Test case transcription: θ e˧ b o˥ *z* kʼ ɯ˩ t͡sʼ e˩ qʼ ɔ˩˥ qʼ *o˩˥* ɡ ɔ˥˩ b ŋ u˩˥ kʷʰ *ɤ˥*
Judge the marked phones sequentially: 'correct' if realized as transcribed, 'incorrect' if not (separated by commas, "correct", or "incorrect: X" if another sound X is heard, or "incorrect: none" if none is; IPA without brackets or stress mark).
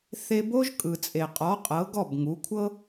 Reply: incorrect: ʒ, incorrect: ɤ˩˥, correct